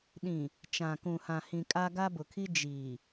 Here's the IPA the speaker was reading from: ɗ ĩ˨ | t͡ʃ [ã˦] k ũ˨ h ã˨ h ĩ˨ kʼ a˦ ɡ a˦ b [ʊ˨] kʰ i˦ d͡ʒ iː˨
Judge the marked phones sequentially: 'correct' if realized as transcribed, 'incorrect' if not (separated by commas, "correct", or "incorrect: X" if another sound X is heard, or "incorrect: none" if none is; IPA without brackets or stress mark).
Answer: incorrect: ã˨, correct